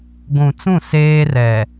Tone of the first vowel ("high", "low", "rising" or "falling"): low